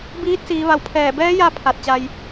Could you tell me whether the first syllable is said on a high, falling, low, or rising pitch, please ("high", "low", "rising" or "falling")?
rising